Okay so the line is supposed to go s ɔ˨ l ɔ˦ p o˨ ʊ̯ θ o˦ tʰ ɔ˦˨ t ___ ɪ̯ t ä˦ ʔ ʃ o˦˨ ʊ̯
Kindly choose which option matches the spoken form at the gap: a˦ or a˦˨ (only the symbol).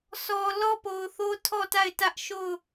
a˦˨